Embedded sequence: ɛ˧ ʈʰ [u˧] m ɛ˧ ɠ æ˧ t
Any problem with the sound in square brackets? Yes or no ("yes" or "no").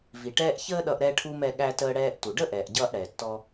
no